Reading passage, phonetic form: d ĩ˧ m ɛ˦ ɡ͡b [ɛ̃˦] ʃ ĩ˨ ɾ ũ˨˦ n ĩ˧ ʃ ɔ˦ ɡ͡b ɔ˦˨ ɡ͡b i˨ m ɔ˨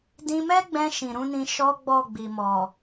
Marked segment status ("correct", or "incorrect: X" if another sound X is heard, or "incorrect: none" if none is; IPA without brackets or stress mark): incorrect: ɛ̃˧